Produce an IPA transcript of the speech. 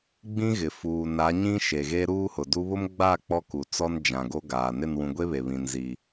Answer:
ɡ͡bĩ˦ɣɪ˨ fuː˨na˨˦ɲĩ˦ ʃe˨ɣe˦ ɾuː˦hʊ˨du˦ βʊ˦mɡ͡ba˦˨ k͡pɔ˦ku˨t͡sɔ˦n d͡ʒã˨ ɡo˦ɡaː˨ nɪ˦˨nwũ˨ ɡʷe˦βe˨ βĩ˨n zi˨

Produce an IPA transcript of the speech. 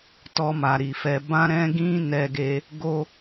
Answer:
tɔ˧ma˨ɾi˨fɛ˧ bã˦ ɾɛ̃˦ ɡĩ˦ nɛ˦ɡe˦ | ɡo˦

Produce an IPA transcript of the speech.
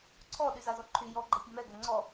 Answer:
ǀʰɔ ɗyzazɔǃʰy jɔ ɡ͡ǃɛpʲɔmɛ ɡɛŋ͡ǀɔ

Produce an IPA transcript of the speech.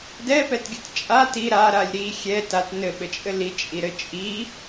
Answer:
dɛpɛtɡʲɘt t͡ʃʼa ti ɾaɾalʲ ɾi xʲɛ tat nɘɓɘt͡ʃʼɘ lit͡ʃʼiɾɘ t͡ʃʼi

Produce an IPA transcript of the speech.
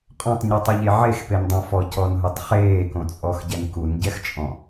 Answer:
qʼɔ̃tˤɲutˤʊʎe ʕexpendˤõ fɔcɔnɦʊtˤ χeːkõt͡sʼɔxɟɛn kunɟɛxt͡ʃʼɔ̃

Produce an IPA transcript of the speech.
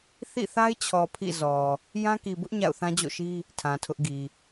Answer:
θḭ˦˨θa˦ɪ̯t͡ɕʰɔ˨ pʰḭ˦˨ zɔ˨ | jã˦ki˨bʊ˦ʔ ɲa̰˦˨ʊ̯θã˦d͡ʑo̰˦˨ʃi˦ | tʰã˨tʰʊ˦ʔɡi˨

